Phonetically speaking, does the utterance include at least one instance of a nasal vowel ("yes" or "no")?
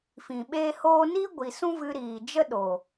yes